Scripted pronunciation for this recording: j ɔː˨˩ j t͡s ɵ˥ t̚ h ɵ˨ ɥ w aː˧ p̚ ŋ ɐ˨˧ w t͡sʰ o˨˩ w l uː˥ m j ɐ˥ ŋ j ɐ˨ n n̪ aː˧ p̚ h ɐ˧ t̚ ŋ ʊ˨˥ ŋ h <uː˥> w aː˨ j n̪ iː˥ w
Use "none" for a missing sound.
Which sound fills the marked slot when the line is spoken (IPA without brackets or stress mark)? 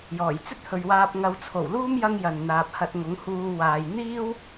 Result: uː˧